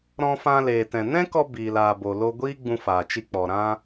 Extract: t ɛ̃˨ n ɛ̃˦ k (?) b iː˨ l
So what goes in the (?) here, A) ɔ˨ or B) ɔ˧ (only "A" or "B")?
B